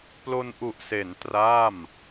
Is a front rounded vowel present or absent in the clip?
absent